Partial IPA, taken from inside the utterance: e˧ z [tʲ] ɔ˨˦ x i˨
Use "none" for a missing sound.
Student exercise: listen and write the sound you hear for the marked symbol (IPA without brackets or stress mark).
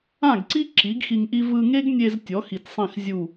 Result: tʲ